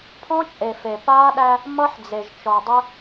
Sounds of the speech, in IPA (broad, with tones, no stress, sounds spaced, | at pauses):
pʰ ɔ̃˦ t͡ʃʼ e˨ f e˨ p aː˦ ɗ æ˦ | m ʌ˦ ħ d͡z e˨ ʒ t͡ʃ ɔ˨ dˤ ə˦